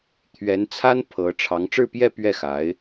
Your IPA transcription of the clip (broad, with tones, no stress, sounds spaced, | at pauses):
t̪ʰ ɥ ɛ˧˥ n t͡sʰ a˥ n pʰ ɤ˧˥ ʈ͡ʂʰ ɑ˧˥ ŋ ʈ͡ʂ ɻ̩˥˧ p j ɛ˥˧ p ɥ ɛ˥˩ x a˧˥ ɪ̯